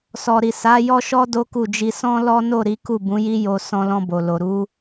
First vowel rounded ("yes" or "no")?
yes